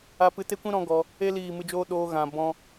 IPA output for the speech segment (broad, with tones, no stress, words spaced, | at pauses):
a˧pɨ˧te˦kʷĩ˦ ɾɔ̃˦ɡɔ˧ | e˦ liː˦˨mɨ˧d͡ʒoː˦ ɗoː˧ ɣã˨ bɔ̃˧